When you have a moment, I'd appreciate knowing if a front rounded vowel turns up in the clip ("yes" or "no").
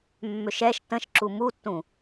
yes